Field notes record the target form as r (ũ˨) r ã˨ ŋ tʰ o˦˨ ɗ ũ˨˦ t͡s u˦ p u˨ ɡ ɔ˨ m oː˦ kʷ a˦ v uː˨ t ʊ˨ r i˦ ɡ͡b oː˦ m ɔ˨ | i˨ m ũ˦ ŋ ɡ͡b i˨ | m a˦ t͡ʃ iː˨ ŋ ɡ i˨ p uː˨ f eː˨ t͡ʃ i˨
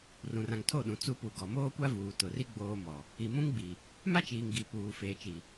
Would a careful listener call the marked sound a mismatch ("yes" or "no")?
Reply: no